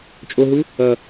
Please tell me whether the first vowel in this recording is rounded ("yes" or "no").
yes